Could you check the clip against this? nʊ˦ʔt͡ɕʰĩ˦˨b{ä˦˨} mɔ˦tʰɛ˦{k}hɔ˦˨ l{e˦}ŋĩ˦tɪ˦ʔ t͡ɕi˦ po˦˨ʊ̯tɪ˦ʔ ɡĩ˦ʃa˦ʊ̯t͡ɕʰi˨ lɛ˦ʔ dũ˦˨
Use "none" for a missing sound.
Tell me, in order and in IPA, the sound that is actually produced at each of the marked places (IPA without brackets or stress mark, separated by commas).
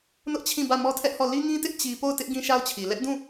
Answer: ä˦˨, ʔ, i˦